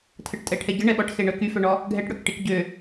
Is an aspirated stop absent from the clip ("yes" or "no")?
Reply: no